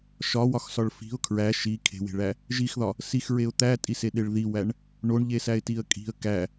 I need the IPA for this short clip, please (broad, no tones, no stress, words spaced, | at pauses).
ʃɒwɒxsɒɭ fi̤ʊ̯ kʰɹæ ʃi kʰe̤we̤ɭæ | ʒixðɒ | sixɹeʊ̯ t̪ætʼiseɗeɭ ðiwæɳ | ɳoɳʎesæɪ̯tiə̯ kʼi̤ə̯ kæ